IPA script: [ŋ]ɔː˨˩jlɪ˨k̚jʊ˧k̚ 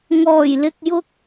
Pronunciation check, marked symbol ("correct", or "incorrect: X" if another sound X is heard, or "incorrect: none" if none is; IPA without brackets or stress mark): correct